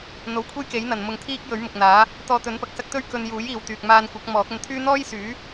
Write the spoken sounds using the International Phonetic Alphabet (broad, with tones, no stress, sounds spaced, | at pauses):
n̪ o˨˥ w kʷʰ e˥ j k e˨˥ j n̪ ɐ˨ n m ʊ˧ ŋ t̪ʰ iː˥ k̚ j ɵ˨˥ ɥ m ʊ˨ k̚ n̪ aː˨˥ | t̪ ɔː˧ t̪ ɵ˨˥ n p ɐ˨ k̚ s ɐ˥ k̚ t̪ ɵ˥ ɥ k ɵ˧ n j uː˨˥ j iː˨ w t̪ yː˨ k̚ m aː˧ n kʷ ɐ˨˥ k̚ m ɔː˨˥ k̚ ɐ˧ n t̪ʰ yː˥ n̪ ɔː˥ j s yː˨˥